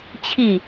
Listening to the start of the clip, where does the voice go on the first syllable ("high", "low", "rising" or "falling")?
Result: falling